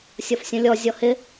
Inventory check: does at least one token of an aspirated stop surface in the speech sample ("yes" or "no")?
no